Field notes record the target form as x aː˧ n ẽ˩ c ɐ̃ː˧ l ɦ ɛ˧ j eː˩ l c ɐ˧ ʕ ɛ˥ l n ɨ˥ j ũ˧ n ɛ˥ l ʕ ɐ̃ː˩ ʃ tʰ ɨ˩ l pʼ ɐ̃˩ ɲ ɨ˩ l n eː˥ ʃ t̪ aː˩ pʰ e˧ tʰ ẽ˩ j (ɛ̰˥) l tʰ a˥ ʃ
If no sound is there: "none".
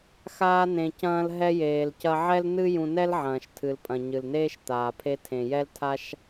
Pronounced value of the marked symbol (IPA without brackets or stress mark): ɛ˥